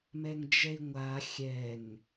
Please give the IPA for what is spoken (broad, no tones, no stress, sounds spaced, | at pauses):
m ɛ ŋ d͡ʒ ɛ i̯ ŋʷ a xʲ ɛ ŋ